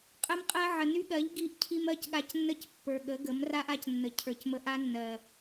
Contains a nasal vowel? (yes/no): no